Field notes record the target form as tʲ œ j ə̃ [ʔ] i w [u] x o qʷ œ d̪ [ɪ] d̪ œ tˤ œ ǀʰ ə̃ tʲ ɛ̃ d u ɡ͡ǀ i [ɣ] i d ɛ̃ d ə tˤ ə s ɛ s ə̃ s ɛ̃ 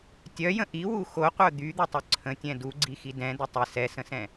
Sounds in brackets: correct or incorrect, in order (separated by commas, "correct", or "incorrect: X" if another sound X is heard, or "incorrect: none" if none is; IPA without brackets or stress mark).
correct, correct, incorrect: y, incorrect: x